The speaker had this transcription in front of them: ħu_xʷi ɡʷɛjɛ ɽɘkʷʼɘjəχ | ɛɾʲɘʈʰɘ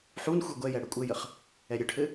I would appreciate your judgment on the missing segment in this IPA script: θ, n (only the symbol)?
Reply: n